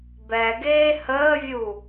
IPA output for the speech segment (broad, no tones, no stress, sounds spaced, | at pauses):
b ɛ ɡ eː h əː vʲ u